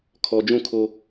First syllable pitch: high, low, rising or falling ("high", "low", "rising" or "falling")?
low